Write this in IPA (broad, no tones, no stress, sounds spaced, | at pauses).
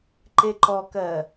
ǃ e ǃ ɔ k ɜ